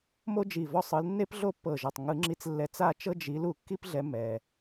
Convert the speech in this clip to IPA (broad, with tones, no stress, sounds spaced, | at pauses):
m o˥ d͡ʒ i˧˩ v ɔ˥˨ sˤ ɯ˨˦ l nː e˥ p ɮ o˥ pː ɤ˧˩ ʒ ɔ˧˩ tˤ ŋ ɯ˨˩˦ ŋ͡ǁ i˨˦ t͡s lː ɛ˨˦ t͡s a˥˨ t͡ʃ ɤ˥ d͡ʒ i˨˦ l u˨˩˦ kː i˥ p ɮ ɛ˨˦ m ɛ˩